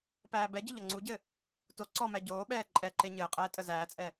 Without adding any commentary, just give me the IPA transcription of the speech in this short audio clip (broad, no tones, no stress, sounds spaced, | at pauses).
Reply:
p æː b ɛ ɟ ɘ ʎ ʌ ŋ͡ǀ u ɟ ɘ | t o ǀ ɔ m æ ɟ oː ɓ ɛː ǃʼ ɛ ǃ e ɲ ɘː qʼ ɛː tʼ ə z æː t͡sʼ ɛ